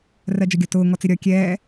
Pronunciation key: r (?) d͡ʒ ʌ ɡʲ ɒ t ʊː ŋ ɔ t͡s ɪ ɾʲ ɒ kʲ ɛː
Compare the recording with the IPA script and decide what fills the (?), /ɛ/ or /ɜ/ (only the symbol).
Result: ɜ